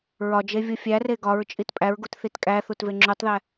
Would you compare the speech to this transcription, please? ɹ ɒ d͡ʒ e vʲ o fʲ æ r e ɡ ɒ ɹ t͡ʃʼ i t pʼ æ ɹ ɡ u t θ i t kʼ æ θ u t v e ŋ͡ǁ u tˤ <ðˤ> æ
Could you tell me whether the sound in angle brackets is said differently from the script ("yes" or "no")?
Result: yes